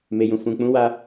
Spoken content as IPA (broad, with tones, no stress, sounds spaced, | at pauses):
m e˨ j ũ˨ f ũ˨ k͡p ũ˨˦ w a˦